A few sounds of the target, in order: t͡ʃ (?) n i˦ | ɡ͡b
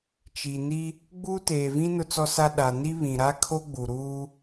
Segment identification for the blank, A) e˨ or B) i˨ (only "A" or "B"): B